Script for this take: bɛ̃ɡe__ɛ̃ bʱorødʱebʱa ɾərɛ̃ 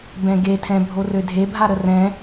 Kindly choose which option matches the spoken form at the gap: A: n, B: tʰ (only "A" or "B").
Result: B